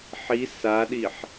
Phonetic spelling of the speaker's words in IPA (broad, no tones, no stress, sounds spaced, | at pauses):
ħ i s a ɗ i ħ